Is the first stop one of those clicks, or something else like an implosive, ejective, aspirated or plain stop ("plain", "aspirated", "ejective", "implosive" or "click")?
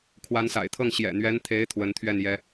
aspirated